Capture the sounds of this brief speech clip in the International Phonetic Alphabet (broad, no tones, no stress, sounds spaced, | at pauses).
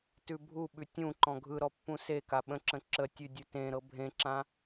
t ʉ bʱ u ɓ ʉ tʲ ũ ǃ ɔ̃ ɡʱ ɯ ɾ ɔ pː ũ s e k a ɓ ə̃ ǁ ə̃ ǁ ə tʲ ʉ dʲ u t ẽ ɾ ɤ bʱ ẽ ǁ ã